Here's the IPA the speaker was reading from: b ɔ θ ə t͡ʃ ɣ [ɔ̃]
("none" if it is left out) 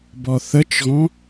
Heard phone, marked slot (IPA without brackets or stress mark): ɔ̃